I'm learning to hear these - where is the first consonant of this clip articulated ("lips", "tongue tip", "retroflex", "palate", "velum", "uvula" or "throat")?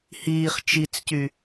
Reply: throat